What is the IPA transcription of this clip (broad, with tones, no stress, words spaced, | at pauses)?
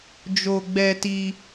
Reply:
d͡ʒo˦ɡ͡bɛ˦ti˦